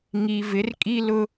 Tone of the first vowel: low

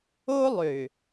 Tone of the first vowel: high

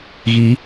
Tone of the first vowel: rising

